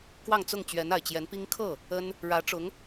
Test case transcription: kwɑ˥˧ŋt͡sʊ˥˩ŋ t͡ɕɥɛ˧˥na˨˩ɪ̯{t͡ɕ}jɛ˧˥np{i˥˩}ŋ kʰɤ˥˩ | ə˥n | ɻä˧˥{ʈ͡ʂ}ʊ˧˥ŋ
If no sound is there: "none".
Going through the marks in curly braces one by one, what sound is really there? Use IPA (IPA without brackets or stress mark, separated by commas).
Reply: t͡ɕ, i˥, ʈ͡ʂ